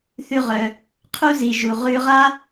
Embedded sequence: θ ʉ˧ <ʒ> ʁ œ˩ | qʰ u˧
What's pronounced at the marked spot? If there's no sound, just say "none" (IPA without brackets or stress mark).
none